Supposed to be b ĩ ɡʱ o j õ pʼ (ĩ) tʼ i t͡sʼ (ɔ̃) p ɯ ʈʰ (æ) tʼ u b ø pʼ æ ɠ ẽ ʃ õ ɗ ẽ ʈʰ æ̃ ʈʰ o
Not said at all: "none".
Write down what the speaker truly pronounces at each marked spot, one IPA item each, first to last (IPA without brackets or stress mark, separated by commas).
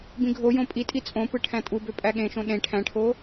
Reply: i, õ, æ̃